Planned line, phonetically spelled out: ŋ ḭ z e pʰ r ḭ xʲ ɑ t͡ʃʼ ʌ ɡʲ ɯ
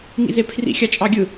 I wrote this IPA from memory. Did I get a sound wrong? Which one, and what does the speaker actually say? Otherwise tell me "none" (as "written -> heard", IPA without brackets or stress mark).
ʌ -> ɑ